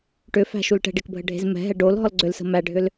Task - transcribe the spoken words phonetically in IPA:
ʈ ʏ f æ̤ ʃ u l ʈ ɛ̤ ɖ e k bʱ ə ɖʱ e̤ z m ɛ̤ ɦ ɛ ɖ o l ɦ ɔ l ɡ͡ǀ ʏ l s ə̤ m æ ɖʱ ʏ l

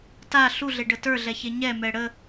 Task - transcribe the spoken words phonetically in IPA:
t a ɬ u ɮ e ɖ ə t ə˞ ɮ ɛ ç e ɲ ɛ m ɛ ɽ ə

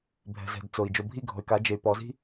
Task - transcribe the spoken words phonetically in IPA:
bʱ ɛ̤˨ z ɛ̤˨ d t͡s o˨ i̯ d͡ʒ o˨ bʱ i˦˨ ɡʱ ɔ̤˨ y̯ k a˨˦ d͡ʒ e˨ y̯ p ɔ˨˦ z i̤˦

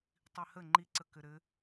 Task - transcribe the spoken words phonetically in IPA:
tˤ i h ə ŋ͡ǃ i ǀ ə k ɘ ɾ ɘ

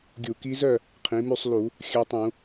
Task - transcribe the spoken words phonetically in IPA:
ɡʲ u˧˩˧ k i˧˥ z œ˥˨ | qʰ ĩ˩˥ m y˥˨ sˤ l u˧˩˧ | xʲ œ˧˥ tˤ ũ˧˩˧

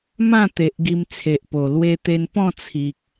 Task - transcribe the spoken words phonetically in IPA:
m ã˥˧ t̪ e˨ ʔ ɡ i˧ m t͡sʰ e˨ ʔ p o˨˩ l w e˧ t̪ e˧ n p ɔ̃˥˧ t͡sʰ i˨ k̚

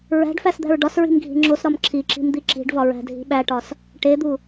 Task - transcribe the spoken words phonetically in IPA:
ɹ æ̤ ɖ f æ s d̪ æ̤ ɹ ɖ ɒ s ɹ i̤ m ɡʱ i̤ ŋ͡ǁ o s ɾ ɒ m ǁʰ i ǁ i̤ m d̪ i ǁ i̤ ɖ v ɒ ɹ æ̤ dʱ i̤ ɓ æ ʈ ɒ s | ʈ e d̪ u

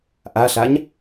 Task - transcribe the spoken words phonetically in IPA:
ʔ a ɬ a ɲ

